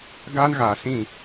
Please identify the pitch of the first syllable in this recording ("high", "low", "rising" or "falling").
high